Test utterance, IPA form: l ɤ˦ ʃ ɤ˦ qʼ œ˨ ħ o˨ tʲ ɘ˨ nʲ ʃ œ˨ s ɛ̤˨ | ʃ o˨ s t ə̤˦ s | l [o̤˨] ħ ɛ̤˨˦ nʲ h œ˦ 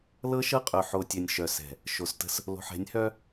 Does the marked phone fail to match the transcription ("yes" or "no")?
no